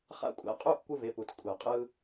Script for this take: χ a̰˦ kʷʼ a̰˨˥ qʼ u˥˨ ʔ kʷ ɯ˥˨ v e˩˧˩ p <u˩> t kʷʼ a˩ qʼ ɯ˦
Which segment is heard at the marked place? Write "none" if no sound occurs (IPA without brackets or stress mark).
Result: u˩